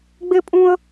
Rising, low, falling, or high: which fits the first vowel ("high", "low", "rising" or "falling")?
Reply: high